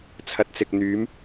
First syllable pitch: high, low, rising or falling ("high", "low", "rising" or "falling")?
low